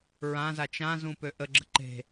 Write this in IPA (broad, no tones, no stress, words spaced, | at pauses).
ɹãza t͡ʃãzũ pøʔəɡ͡ǁə̤ ǃe̤